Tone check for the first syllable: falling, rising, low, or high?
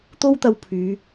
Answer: high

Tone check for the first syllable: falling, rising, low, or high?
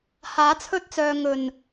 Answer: rising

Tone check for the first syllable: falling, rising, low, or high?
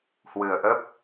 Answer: low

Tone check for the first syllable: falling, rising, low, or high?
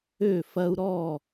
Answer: falling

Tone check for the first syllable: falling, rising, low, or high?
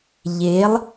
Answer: rising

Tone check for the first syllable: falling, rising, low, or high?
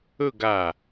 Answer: falling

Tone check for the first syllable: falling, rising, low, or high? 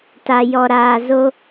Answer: low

